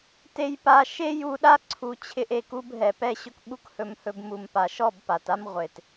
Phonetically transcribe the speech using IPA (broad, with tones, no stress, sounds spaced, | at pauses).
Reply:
t e˦ j p a˦ ʃ e˦ j u˧ ɗ a˦ ǀʰ u˧ t͡ɕʰ ɪ˦ ʔ e˧ k u˦ b ɦ ɛ˨ p ɛ˦ ɕ ɵ˦ k ɓ u˦ k h ɵ˧ m h ɵ˧ b m u˨ m p a˨ ʃ ɔ˦˨ b p a˨ t a˦ m ʁʷ e˨ t